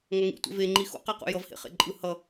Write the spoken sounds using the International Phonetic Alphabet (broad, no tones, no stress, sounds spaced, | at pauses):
ŋ ʌ ŋ ḭ tʷ ḛ v e ŋ͡ǃ i x o̰ q ɛ q ṵ j ʌ v h ḛ χ ḛ ǃʼ ɯ h ʌ